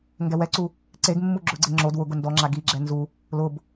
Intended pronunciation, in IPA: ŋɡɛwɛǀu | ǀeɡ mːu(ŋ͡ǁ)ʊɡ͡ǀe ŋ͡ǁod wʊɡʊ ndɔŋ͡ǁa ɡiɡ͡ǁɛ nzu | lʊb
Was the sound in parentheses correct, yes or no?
no